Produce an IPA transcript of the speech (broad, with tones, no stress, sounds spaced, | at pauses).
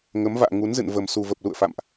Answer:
ŋ ə˨˦ m v a̰ː˧˨ ŋ u˨˦ n z ɨ̰˧˨ n v ə˨˩ m s u˨˩ v ə˨˩ p̚ l ṵ˧˨ ə̯ f a̰˧˨ m ʔ